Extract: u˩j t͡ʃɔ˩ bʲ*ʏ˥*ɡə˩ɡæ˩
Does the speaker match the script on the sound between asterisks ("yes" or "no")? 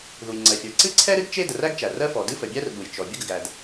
no